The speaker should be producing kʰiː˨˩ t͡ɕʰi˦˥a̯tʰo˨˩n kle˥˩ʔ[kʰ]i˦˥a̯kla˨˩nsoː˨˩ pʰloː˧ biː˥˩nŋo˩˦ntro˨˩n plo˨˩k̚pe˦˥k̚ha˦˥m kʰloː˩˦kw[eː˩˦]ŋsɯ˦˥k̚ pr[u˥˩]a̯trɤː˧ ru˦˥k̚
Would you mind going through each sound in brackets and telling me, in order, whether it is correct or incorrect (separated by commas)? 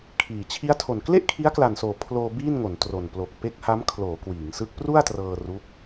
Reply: correct, incorrect, correct